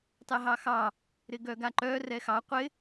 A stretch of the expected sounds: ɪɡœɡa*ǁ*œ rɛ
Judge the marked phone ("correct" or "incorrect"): incorrect